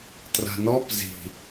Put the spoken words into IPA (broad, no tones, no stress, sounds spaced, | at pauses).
t r a̤ n ɔ p z i̤